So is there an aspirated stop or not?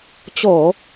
no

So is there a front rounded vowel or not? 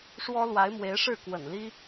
no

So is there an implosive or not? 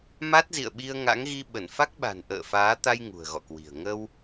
yes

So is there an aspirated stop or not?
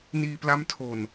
yes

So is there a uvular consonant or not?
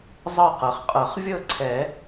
yes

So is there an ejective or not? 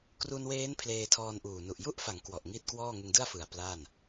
no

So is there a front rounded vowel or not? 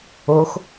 no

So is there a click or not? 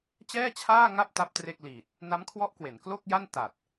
no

